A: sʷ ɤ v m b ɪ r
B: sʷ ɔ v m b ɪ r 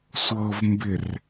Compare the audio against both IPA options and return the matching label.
A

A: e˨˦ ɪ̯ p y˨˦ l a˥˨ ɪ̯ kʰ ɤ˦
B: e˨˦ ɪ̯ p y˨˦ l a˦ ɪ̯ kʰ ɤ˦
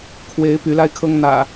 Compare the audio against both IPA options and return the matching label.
B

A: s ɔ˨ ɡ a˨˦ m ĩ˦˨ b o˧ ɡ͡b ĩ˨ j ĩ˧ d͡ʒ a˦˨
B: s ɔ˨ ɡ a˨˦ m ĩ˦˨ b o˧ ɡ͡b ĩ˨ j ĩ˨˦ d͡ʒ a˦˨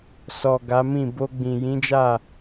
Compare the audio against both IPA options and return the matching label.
B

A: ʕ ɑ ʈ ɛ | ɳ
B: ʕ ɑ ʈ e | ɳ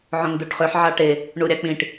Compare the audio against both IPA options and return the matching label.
B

